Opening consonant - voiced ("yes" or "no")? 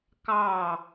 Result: no